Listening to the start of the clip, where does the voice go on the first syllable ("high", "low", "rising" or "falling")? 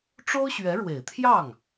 high